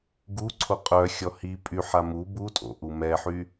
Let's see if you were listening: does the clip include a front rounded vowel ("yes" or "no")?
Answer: yes